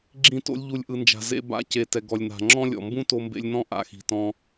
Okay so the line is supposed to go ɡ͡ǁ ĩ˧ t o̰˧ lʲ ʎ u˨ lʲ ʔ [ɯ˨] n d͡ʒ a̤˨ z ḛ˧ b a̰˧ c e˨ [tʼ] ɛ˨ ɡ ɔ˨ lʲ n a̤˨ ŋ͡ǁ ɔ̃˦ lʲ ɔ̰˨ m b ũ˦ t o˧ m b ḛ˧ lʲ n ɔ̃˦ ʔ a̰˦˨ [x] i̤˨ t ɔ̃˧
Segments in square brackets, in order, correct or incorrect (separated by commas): correct, incorrect, correct